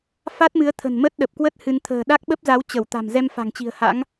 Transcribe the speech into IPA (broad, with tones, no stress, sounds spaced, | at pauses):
f a˦˥ t̚ m ɨ˨˦ ə̯ t̪ʰ ə̤˨˩ n m ə˦˥ t̚ ɗ ə˨˩ p̚ k w ə˦˥ t̚ h ɨ˧ n t̪ʰ ə̤ː˨˩ ɗ a˦˥ k̚ ɓ ə˦˥ p̚ z a˨˦ w t͡ɕ ə˧˩ w t̪ a̤˨˩ m z ɛ˧ m f a̤˨˩ ŋ t͡ɕ i̤˨˩ ə̯ h a̰˧˥ ŋ